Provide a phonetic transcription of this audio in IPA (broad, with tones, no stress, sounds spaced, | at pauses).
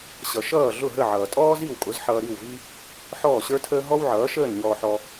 ɕ ʌ˩ ʃ ʌː˥˩ ɮ ʊ˥˩ ɦ ə˥˩ ʕ ʌː˩ tʼ ɔː˥ z i˥˩ w kʼ ʊ˩˥ z ħ ʌː˧ ɾ i˥˩ w v i˥ | ħ ɔː˥˩ ɕ ə˞˥ tʰ əː˥ ɦ ɔ˥ w ʕ ʌː˩˥ ʃ əː˥˩ n ɲ ɔː˧ ħ ɔ˧